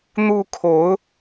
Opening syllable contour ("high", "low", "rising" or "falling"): high